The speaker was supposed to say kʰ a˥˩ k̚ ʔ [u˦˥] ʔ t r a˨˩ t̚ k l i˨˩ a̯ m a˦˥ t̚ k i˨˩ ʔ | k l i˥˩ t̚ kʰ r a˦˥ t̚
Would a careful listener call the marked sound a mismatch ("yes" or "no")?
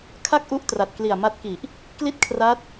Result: no